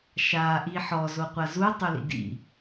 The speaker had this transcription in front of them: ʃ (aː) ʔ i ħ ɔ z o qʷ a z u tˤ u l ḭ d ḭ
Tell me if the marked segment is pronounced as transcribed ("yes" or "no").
yes